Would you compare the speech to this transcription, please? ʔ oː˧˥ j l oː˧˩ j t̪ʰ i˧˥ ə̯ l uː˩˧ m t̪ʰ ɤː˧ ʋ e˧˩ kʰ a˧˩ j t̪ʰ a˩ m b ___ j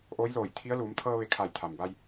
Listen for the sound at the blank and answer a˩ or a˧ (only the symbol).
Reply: a˧